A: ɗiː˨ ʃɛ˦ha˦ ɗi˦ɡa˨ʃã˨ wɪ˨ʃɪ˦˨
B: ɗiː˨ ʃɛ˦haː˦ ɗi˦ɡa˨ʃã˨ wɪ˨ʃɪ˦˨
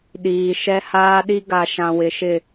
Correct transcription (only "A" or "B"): B